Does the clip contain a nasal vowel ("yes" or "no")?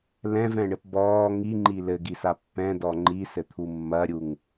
yes